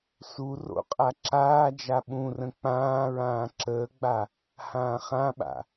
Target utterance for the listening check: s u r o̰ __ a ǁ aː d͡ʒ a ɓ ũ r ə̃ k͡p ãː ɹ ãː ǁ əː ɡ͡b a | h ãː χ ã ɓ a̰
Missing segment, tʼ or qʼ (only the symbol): qʼ